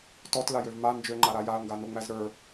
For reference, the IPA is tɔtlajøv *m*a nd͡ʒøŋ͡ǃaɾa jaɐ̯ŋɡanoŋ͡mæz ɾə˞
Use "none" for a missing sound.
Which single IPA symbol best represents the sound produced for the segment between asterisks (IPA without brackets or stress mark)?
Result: m